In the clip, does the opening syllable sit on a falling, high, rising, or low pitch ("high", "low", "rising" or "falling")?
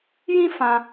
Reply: high